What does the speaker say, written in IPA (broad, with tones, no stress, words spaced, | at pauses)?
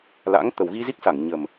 la̰˧˥ŋ t̪ə˨˩wɣi˧zi˦˥k̚sa˧˩ŋ ɲə˨˩m